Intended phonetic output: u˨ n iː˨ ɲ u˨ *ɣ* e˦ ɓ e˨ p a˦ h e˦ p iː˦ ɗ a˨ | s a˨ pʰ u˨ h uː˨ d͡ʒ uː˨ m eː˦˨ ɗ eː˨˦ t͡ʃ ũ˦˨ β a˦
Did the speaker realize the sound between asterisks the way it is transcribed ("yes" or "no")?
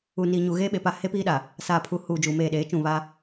yes